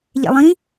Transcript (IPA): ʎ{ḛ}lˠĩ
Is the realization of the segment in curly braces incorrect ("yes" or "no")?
no